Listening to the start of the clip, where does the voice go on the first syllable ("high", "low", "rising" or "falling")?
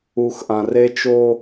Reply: low